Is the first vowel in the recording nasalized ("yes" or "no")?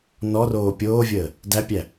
no